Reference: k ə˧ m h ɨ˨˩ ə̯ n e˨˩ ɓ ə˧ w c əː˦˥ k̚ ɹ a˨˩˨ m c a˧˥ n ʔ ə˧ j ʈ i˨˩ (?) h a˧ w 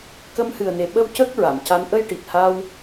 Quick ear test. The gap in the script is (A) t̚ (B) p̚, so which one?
A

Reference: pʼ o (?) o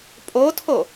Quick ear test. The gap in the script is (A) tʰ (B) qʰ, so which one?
A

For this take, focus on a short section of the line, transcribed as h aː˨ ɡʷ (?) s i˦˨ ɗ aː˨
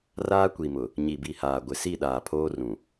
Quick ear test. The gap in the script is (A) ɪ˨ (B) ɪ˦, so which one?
A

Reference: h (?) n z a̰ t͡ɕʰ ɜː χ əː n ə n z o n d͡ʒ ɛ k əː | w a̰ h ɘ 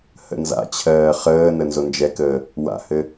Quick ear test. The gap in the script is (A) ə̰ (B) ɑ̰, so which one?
A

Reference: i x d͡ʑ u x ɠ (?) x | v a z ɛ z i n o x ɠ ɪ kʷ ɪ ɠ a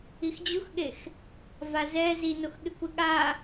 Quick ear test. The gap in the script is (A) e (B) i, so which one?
A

